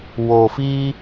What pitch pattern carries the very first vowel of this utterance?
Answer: low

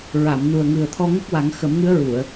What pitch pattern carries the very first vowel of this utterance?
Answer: low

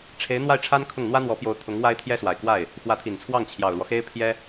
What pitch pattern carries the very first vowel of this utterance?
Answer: rising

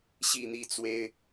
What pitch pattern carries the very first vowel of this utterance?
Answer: falling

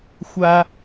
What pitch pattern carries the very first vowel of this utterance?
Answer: high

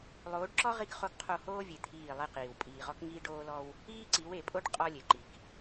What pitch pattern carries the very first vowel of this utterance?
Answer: rising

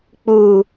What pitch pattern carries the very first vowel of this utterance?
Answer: low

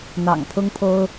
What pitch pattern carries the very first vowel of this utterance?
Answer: low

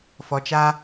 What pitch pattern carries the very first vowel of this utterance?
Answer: low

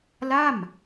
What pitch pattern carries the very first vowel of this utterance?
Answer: falling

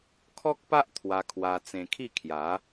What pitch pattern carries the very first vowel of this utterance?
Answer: high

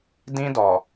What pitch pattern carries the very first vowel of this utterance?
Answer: high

